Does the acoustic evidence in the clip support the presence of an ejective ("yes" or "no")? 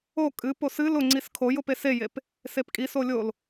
yes